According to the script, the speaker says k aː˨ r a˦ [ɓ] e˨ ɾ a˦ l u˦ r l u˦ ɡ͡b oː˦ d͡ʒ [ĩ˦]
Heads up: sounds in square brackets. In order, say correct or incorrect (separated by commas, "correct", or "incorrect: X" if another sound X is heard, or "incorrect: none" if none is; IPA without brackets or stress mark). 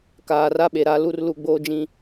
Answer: correct, correct